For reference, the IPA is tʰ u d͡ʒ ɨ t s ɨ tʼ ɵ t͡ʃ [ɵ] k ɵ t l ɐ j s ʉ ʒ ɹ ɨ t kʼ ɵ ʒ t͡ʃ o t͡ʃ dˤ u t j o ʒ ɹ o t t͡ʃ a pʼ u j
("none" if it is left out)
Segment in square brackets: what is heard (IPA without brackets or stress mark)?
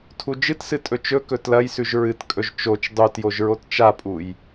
ɵ